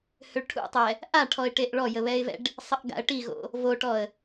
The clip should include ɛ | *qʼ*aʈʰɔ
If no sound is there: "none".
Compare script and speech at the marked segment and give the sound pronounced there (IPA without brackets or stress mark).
ʔ